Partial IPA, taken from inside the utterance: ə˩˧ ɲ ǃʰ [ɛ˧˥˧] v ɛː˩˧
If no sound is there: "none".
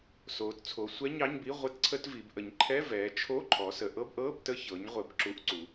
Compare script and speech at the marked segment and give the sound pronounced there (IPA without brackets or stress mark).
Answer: ɛ˧˥˧